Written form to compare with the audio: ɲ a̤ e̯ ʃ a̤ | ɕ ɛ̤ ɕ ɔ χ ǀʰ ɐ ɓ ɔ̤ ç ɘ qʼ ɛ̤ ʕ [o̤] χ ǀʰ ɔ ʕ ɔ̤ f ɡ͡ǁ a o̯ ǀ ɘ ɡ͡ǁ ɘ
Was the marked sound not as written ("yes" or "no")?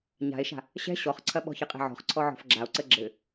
yes